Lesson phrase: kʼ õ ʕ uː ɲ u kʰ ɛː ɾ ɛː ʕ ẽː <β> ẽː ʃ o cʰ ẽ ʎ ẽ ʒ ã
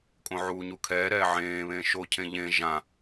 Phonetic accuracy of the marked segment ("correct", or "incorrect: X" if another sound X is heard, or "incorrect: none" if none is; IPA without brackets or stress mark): correct